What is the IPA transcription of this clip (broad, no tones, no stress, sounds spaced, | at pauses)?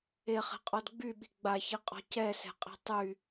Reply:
e χ ɛ̤ qʼ ɔ d ɡ͡b y ɓ i̤ ɡ͡b a ç i qʼ ɔ̤ c ɛ s ɛ̤ qʼ ɛ̤ tˤ y